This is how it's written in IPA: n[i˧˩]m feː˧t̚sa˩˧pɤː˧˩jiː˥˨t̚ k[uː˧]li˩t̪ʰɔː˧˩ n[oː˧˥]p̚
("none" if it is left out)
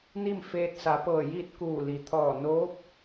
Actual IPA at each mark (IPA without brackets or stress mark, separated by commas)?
i˥˨, uː˧˩, oː˧˥